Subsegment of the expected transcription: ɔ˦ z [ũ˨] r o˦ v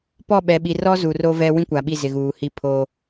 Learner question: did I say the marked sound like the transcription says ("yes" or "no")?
no